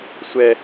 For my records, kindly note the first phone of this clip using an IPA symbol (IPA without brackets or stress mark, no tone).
sʷ